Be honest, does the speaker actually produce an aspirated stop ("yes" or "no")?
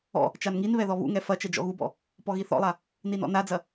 no